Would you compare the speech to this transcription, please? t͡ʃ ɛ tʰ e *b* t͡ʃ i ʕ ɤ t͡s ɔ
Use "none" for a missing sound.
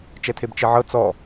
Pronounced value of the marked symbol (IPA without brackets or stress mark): b